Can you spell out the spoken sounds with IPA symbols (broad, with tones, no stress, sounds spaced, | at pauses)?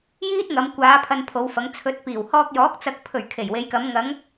j iː˥ t̚ ŋ ɐ˨˧ m kʷ aː˨˧ pʰ ɐ˧ n pʰ o˨˧ w f ɐ˨˧ ŋ t͡sʰ ɵ˨˥ t̚ p iː˨˩ w h ɔː˧ k̚ j ɔː˨˥ k̚ t͡s ɐ˨ k̚ pʰ ɵ˨˩ ɥ kʰ e˨˩ j w e˨˧ j k ɐ˨˧ m ŋ ɐ˨˧ ŋ